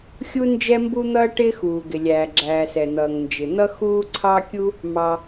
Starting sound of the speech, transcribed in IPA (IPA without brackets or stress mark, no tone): xʲ